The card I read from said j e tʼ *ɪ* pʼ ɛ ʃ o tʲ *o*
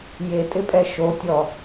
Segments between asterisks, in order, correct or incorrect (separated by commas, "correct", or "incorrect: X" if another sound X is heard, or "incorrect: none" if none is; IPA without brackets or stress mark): correct, incorrect: ɔ